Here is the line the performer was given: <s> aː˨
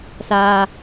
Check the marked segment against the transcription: correct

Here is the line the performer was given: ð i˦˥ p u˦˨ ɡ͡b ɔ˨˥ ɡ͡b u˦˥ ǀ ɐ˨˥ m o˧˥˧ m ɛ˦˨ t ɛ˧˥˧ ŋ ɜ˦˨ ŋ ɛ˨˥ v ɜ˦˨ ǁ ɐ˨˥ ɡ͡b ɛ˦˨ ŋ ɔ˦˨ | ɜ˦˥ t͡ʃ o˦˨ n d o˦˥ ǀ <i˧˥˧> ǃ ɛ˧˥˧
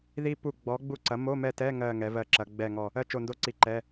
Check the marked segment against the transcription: incorrect: i˦˨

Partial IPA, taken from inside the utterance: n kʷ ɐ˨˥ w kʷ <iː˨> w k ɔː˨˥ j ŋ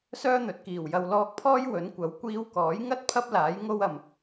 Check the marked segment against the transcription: incorrect: iː˧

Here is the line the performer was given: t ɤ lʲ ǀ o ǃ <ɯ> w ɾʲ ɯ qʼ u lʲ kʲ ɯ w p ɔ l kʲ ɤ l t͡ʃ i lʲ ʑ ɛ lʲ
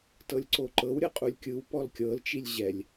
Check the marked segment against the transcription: incorrect: ɤ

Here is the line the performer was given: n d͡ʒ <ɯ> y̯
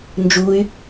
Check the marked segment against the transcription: incorrect: u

